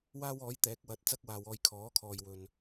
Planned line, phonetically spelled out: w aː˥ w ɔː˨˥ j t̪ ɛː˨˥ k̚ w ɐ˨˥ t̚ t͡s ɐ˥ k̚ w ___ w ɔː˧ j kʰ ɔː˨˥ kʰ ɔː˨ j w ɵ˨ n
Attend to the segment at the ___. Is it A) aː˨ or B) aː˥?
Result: A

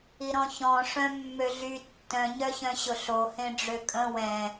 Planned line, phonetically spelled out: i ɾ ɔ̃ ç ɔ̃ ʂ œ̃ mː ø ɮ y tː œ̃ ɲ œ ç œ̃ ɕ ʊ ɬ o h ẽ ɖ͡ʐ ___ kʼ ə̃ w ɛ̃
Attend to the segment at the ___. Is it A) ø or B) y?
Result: A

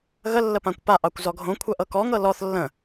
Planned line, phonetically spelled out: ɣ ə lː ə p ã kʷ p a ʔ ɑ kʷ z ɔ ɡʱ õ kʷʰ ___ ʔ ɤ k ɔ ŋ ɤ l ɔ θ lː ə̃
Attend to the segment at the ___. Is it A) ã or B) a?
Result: B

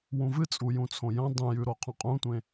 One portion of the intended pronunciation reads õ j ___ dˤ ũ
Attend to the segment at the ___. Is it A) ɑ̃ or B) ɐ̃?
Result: B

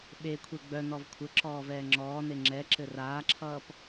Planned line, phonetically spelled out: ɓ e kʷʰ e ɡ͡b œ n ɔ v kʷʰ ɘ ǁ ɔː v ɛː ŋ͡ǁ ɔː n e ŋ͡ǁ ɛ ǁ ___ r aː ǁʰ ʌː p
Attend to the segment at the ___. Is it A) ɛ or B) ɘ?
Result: B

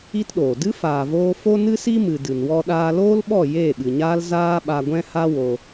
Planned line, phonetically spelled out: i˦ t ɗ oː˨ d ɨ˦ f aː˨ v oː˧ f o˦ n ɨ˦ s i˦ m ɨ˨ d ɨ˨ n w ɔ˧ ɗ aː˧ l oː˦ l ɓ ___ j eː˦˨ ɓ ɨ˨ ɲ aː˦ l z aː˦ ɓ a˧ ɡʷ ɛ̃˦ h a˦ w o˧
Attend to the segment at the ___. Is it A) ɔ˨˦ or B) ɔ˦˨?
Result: B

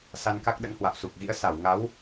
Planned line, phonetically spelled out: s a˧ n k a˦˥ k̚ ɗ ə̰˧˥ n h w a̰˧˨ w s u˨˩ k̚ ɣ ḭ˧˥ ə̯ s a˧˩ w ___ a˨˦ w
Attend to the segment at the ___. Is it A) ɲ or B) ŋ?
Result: B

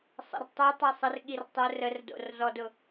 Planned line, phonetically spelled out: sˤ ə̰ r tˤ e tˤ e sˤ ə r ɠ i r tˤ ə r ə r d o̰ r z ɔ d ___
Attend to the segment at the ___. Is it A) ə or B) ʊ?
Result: B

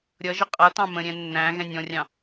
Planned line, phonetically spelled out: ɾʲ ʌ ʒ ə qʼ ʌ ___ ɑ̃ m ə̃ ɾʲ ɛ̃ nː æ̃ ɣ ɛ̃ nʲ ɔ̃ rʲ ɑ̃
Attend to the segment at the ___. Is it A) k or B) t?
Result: B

